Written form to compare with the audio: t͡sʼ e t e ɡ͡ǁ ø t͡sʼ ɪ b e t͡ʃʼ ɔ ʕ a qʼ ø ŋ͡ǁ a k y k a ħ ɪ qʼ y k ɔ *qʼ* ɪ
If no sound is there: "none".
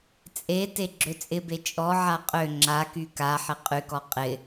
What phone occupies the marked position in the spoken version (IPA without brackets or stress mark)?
qʼ